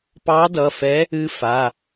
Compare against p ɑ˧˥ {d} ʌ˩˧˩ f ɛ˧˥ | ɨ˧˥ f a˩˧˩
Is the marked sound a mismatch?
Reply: no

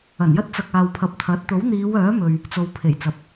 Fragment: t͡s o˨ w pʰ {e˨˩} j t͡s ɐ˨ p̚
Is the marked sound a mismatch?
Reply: no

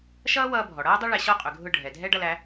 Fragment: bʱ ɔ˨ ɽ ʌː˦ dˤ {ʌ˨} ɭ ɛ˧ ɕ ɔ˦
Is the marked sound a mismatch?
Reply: yes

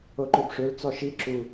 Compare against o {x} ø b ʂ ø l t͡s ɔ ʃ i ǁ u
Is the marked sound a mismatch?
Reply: yes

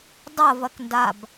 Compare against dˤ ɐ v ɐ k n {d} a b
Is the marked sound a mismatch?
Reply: no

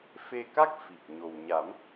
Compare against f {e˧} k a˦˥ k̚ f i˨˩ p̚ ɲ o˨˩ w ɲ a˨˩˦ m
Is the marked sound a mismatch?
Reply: no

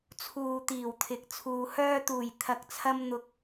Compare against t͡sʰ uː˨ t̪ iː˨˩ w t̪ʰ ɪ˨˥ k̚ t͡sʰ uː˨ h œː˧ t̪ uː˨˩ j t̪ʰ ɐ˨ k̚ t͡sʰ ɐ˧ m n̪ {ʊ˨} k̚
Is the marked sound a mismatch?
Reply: no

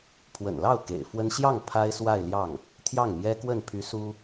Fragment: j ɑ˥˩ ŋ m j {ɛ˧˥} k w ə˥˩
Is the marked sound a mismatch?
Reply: yes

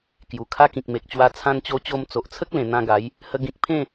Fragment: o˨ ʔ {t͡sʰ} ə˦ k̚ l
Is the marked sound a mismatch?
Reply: no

